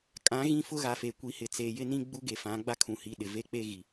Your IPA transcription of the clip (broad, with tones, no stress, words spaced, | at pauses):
kʼã˨˦ ɣĩ˦ fʊ˦ɣa˨fe˨ kʷi˨hɪ˨t͡se˨jɪ˦ nĩ˦ ɡ͡bu˦ ɡe˨fã˨˦ɡ͡ba˦ kʰũ˨hi˨ ɗɪ˨ ve˦˨k͡pe˦ ɣi˨